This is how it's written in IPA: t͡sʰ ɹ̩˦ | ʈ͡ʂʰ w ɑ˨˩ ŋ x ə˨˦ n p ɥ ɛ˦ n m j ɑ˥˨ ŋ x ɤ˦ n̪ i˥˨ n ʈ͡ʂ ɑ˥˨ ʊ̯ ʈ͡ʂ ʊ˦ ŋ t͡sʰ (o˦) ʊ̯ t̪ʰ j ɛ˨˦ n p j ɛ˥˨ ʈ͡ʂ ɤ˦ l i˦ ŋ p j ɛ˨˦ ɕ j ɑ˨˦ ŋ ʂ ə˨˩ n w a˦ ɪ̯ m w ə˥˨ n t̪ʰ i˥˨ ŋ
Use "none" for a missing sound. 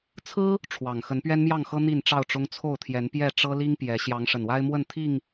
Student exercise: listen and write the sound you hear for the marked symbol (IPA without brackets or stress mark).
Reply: o˥˨